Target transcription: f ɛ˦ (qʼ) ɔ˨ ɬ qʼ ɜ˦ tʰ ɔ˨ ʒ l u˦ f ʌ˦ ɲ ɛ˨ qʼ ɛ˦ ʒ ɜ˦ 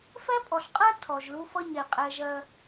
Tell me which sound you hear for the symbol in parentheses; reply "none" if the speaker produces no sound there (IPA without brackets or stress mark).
pʼ